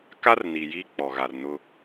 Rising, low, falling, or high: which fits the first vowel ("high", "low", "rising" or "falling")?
high